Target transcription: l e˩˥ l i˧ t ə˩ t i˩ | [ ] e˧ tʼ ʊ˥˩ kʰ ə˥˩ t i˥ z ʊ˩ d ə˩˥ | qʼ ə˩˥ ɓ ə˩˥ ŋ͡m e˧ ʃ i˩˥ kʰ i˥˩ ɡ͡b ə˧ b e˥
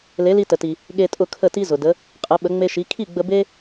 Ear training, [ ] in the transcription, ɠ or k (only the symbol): ɠ